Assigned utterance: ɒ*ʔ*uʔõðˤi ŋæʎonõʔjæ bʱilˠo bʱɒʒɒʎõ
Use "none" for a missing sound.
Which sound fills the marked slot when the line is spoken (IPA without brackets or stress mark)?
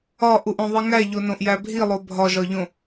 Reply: ʔ